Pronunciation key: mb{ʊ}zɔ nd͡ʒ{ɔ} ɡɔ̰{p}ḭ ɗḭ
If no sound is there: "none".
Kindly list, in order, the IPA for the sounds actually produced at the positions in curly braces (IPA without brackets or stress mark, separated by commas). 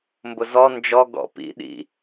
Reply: ʊ, ɔ, p